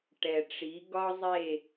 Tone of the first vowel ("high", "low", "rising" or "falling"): low